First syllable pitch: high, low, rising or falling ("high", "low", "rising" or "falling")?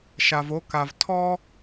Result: low